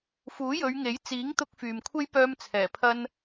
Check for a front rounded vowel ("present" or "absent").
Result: present